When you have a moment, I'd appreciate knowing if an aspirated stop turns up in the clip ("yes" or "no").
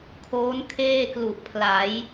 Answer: yes